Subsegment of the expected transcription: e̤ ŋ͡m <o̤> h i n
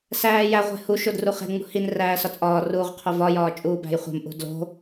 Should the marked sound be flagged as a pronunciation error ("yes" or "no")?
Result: yes